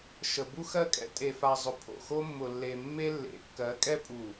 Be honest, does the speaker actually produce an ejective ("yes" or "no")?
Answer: yes